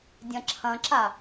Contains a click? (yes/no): yes